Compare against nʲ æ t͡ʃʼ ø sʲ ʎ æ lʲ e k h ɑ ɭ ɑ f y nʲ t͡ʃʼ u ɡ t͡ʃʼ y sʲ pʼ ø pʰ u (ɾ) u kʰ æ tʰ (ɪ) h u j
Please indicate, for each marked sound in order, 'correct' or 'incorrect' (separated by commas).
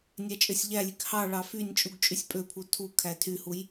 incorrect, incorrect